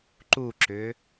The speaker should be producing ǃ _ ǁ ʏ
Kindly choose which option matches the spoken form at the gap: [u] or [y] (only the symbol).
u